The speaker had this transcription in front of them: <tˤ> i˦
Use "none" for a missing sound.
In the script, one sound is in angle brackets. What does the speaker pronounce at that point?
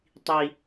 tˤ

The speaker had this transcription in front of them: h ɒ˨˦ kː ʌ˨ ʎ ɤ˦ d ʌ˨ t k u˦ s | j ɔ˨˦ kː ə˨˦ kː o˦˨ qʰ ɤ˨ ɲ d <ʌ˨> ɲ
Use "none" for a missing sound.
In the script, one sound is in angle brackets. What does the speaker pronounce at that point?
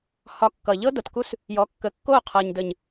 ə˨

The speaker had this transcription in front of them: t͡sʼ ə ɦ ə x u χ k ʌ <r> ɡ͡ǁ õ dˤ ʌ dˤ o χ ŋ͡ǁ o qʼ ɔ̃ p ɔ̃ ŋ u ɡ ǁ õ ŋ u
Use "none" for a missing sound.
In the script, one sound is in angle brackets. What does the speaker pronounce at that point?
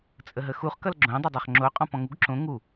l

